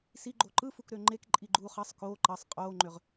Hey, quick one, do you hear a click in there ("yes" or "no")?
yes